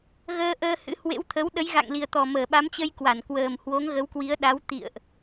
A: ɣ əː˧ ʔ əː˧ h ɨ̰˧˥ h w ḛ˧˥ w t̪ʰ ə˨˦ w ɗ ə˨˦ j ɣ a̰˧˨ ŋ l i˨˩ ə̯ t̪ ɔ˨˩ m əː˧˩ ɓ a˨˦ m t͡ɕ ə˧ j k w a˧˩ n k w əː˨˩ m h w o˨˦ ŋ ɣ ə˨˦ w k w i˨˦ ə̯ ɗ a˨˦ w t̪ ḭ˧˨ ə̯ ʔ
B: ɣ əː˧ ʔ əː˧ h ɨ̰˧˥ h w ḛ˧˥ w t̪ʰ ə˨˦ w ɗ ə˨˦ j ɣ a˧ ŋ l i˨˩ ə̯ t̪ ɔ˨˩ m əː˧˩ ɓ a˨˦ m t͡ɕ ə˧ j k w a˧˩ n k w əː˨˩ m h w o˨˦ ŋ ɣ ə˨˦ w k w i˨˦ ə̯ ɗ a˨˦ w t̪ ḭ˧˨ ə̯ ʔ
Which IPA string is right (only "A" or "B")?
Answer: A